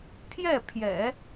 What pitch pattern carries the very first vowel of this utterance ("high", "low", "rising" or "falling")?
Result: falling